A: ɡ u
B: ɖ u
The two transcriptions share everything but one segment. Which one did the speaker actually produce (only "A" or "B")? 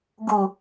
A